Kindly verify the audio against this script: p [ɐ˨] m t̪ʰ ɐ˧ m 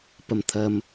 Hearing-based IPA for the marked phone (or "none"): ɐ˨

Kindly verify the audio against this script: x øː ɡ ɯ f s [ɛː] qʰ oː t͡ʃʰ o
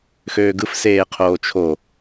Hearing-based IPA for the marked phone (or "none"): eː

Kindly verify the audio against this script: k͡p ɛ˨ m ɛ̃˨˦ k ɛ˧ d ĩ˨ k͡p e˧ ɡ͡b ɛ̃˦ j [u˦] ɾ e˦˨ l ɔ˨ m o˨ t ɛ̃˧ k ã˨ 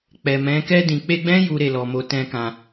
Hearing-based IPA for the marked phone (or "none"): u˦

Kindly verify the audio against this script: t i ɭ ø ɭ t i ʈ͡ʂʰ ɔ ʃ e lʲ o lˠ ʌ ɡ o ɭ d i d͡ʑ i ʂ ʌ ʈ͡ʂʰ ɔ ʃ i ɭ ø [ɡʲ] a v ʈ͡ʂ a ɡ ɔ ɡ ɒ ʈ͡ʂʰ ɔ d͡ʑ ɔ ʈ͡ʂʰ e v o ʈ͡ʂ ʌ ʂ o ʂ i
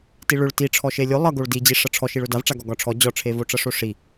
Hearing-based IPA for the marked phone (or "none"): d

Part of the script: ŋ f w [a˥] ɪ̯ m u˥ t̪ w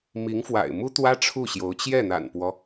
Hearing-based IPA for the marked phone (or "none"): a̰˨˩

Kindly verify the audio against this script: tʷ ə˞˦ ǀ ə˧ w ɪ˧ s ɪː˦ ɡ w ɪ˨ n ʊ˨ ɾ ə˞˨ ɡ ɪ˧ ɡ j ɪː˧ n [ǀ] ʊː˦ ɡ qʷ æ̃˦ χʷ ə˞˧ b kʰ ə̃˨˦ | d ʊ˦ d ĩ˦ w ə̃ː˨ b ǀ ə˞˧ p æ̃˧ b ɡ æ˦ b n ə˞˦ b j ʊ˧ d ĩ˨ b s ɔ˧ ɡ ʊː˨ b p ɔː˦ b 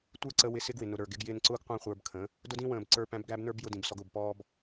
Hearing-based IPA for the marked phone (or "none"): ǀ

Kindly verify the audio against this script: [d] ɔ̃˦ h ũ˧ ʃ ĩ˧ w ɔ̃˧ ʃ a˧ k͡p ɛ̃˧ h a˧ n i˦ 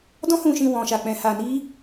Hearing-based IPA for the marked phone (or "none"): d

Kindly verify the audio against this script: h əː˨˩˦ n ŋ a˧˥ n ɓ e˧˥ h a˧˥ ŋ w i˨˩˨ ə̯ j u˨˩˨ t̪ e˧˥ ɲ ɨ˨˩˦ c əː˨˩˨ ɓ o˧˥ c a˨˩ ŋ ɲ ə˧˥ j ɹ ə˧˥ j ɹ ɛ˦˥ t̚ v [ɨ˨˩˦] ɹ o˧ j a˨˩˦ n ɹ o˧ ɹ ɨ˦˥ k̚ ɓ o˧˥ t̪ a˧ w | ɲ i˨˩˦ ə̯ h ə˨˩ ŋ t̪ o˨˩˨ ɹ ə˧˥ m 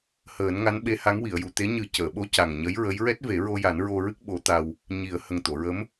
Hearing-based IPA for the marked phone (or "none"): e˨˩˦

